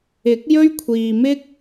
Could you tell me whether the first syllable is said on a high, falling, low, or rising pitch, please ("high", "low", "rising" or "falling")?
rising